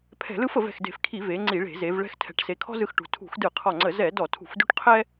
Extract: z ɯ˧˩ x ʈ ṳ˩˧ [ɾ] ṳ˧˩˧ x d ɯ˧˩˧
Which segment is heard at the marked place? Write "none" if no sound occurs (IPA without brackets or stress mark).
tʰ